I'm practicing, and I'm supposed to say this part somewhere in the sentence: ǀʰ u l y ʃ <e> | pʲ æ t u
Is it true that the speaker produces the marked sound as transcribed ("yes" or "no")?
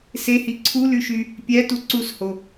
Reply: no